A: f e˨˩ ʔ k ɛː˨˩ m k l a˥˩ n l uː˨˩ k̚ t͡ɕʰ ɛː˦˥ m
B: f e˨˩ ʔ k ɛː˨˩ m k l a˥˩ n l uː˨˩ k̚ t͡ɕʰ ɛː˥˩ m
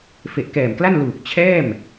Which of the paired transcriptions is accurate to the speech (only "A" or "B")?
B